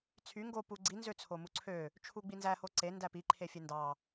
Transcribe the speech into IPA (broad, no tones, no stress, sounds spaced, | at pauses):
t͡sʰ y ŋ ɡ o p u ɡ͡ǀ i n z ø t͡sʰ o m u ǀʰ ø | t͡ʃʰ u ɡ͡b i n z æ h o ǀ e n d æ p i ǃʰ e fʲ e n d ɑ